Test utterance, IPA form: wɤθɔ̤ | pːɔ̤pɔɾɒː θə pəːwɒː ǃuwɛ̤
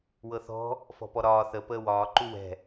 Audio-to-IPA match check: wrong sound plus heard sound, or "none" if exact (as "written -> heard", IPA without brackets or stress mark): pː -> f